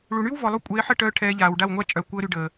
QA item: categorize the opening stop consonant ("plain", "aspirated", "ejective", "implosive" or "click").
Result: ejective